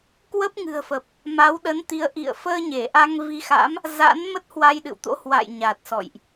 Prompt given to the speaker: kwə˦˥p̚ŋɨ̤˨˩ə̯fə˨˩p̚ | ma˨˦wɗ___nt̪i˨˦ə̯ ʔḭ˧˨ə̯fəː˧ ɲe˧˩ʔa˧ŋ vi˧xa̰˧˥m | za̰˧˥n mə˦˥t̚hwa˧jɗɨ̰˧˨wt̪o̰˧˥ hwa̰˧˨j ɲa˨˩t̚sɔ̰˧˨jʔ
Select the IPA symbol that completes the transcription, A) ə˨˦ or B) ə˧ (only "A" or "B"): A